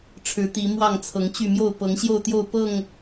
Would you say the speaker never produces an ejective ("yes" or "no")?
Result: yes